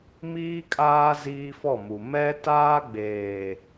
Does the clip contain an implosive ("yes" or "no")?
no